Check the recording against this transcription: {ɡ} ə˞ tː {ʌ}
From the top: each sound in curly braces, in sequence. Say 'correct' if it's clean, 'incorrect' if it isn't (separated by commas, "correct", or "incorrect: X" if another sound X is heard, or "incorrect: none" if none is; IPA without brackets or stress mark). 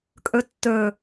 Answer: incorrect: kʼ, incorrect: ə˞